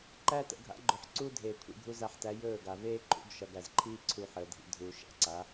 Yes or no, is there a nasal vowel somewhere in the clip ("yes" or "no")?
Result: no